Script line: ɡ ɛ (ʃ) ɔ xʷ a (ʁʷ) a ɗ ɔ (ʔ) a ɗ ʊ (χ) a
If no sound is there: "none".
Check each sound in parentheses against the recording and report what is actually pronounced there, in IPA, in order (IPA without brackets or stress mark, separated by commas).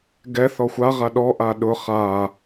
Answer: θ, ʁ, ʔ, χ